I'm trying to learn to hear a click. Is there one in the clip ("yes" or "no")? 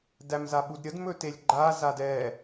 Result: yes